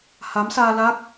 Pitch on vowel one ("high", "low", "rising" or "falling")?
rising